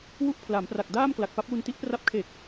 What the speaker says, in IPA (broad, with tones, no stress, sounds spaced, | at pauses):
w u˥˩ ʔ pʰ l a˩˦ m p r a˨˩ k̚ d aː˥˩ m k l a˨˩ k̚ p a˦˥ p̚ w u˧ n t i˦˥ ʔ p r a˦˥ p̚ kʰ e˨˩ k̚